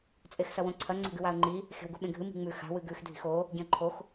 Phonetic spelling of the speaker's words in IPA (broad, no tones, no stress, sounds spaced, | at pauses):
t͡sʼ e x s ɐ w õ ǀʰ ɐ ŋ͡ǀ o̤ ɡ ɨ w a ə̯ ŋ͡ǃ i | x e̤ w ɡ u ɓ ẽ ɡʱ ɨ m i̤ ŋ͡m ʉ x a̤ w ɨ ɡ ʉ x dʱ i̤ x o | ɟ ẽ ə̯ ǃʰ o x